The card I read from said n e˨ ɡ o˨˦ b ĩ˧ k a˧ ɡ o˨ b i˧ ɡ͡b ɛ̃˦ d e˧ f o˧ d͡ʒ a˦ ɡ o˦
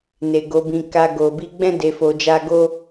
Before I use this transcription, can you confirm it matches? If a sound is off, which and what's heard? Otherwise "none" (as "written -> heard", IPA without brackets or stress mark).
none